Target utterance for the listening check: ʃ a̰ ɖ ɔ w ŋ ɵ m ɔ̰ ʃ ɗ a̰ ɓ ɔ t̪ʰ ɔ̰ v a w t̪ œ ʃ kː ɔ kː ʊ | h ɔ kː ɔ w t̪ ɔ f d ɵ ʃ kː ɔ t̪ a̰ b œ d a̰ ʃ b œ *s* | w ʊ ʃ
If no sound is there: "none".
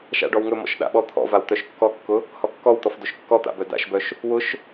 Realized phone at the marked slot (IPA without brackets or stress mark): ʃ